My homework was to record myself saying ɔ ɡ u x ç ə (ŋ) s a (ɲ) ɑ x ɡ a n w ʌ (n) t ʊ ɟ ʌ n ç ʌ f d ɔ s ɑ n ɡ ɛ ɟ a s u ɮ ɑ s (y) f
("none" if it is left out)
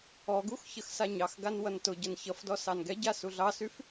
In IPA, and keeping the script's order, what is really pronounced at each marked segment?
x, ɲ, n, y

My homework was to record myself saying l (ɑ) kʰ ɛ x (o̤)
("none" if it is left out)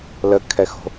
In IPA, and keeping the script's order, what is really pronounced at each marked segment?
ə, o̤

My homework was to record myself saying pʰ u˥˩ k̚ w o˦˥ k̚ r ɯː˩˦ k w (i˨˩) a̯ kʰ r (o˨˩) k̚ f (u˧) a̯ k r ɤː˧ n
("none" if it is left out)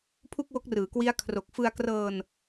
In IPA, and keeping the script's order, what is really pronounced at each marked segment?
i˦˥, o˨˩, ɯ˧

